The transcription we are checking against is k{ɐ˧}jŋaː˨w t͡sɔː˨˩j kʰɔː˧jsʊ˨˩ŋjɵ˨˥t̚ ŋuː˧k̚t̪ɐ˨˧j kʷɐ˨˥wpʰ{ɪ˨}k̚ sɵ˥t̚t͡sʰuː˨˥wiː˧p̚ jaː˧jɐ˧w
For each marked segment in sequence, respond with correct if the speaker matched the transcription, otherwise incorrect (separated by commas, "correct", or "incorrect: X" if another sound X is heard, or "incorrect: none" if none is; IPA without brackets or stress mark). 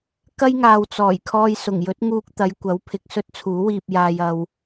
incorrect: ɐ˥, correct